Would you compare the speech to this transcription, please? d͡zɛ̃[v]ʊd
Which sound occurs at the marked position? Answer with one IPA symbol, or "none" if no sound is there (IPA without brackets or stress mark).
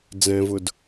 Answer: v